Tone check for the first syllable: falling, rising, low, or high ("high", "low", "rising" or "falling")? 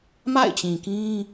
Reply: falling